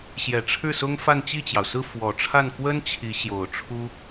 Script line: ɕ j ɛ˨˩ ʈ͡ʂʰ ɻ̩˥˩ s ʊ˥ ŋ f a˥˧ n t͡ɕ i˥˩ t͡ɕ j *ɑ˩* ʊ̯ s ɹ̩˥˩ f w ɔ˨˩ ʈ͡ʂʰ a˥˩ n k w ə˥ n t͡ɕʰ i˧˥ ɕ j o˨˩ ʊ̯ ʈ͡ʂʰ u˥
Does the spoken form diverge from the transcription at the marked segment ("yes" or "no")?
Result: no